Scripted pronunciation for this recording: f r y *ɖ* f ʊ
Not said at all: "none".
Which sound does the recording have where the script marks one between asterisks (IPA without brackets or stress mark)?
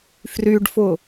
ɖ